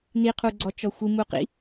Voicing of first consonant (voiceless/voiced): voiced